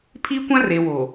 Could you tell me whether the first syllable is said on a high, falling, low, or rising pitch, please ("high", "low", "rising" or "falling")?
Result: high